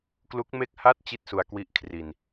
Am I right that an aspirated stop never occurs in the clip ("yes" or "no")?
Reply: no